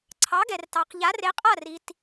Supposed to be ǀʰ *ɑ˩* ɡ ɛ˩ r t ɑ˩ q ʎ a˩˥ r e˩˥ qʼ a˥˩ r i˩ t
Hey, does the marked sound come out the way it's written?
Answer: no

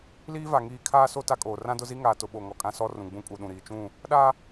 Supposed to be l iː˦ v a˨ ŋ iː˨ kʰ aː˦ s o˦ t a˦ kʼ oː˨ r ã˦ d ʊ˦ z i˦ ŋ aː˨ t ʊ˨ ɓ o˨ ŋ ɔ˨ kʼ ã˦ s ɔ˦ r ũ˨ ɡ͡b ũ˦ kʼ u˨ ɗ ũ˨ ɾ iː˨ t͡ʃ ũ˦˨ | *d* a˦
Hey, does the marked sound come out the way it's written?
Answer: no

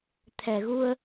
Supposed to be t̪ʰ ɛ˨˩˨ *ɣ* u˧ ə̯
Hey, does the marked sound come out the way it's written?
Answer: yes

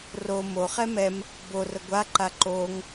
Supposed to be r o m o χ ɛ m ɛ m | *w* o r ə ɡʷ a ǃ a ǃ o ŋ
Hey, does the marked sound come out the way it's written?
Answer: no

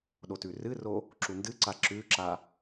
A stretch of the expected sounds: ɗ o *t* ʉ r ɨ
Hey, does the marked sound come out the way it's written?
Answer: yes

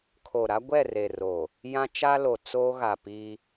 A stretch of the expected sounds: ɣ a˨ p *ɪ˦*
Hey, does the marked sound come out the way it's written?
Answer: no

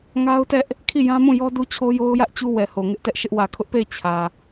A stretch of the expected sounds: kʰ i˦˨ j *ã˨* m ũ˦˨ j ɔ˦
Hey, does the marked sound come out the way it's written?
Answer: no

